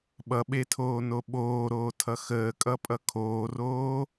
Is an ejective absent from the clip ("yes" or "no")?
no